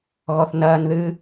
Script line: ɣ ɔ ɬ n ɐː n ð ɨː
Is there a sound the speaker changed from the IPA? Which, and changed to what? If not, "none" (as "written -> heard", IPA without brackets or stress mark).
ɬ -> θ